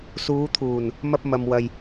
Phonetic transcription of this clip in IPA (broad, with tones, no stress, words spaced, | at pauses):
suː˨˧t̪ʰuː˨˩n | mɐ˧p̚mɐ˨mwɐ˨j